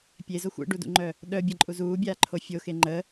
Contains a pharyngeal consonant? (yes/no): no